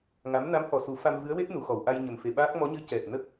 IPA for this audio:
ŋ a˧˥ m n a˧˥ m h ɔ˨˩ s u˨˩˦ f a˧ m v ɨ˧˥ ə̯ w e˦˥ t̚ n u˨˩˨ x ɔ˨˩˨ w ʔ a˧ j ɲ ə˨˩ m f e˨˩ ɓ aː˦˥ k̚ m ɔ˧˥ ɲ ɨ˧˥ c ɛ˨˩ t̚ n ə˦˥ k̚

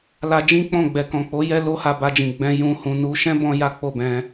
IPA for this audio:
l a˧ d͡ʒ ĩ˦ k͡p ɔ̃˦˨ ɡ͡b ɛ˨ k ɔ̃˨ k͡p o˨˦ j ɛ˦ l o˦ h a˧ b a˧ d͡ʒ ĩ˨ ɡ͡b ɛ̃˧ j ũ˧ h ũ˧ n u˧ ʃ ɛ̃˦ b ɔ̃˦ j a˦ k͡p o˦˨ b ɛ̃˧

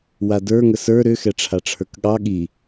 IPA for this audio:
w a d ə˞ ŋ ə s ə˞ ɾ ʏ x ɛ ʈ͡ʂʰ a ʈ͡ʂʰ ə˞ k ɠ ɑ ɠ i

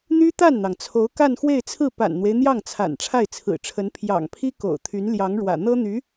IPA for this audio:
n̪ y˥ t̪ a˥˩ n n̪ ɑ˩ ŋ t͡sʰ o˧˥ ʊ̯ k a˥˧ n x w e˥˧ ɪ̯ t͡sʰ ɹ̩˥˩ p a̰˨˩ n n̪ w e˦ ɪ̯ n̪ j ɑ˥˩ ŋ t͡sʰ a̰˨˩ n ʈ͡ʂʰ a˥˩ ɪ̯ t͡sʰ ɹ̩˨˩ ʈ͡ʂʰ ə˧˥ n pʰ j ɑ̰˨˩ ŋ pʰ i˥ k o̰˨˩ ʊ̯ t̪ʰ y˧˥ n l j ɑ˧˥ ŋ ɻ w ä̰˨˩ n̪ ɤ˥ n̪ y˧˥

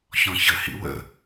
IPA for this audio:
ç ɔ̃ ç ə h ḭ w ə̰

